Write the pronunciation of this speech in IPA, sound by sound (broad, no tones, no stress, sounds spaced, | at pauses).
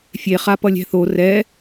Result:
fʲ e χ a p ʌ lʲ ɛ̤ θ o r ɛ